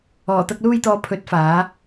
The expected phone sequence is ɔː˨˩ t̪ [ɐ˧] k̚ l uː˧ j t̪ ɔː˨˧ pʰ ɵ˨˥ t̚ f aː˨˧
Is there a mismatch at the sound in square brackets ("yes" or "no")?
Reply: no